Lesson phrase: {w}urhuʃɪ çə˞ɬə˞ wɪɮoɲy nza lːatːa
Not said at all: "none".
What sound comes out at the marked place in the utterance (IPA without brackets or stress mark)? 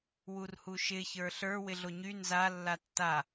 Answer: w